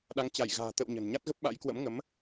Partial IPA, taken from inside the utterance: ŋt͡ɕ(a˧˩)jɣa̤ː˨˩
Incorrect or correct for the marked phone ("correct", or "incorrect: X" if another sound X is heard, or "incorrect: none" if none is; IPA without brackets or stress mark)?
correct